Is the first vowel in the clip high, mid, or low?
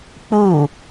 high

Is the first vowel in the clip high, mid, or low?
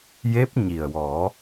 mid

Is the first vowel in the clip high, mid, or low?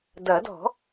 low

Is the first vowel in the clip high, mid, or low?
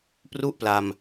high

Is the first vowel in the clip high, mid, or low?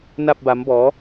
low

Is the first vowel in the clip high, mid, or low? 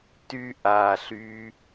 high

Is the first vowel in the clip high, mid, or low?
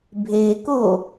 mid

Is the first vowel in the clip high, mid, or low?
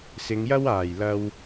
high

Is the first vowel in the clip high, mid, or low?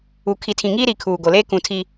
high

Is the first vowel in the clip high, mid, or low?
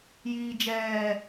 high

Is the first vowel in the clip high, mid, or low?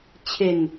mid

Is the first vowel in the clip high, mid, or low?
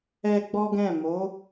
mid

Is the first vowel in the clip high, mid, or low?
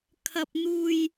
low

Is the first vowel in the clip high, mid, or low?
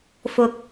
high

